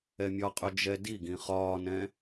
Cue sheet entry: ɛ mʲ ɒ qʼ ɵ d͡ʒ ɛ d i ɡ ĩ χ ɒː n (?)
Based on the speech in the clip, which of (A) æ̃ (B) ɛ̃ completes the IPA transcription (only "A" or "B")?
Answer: B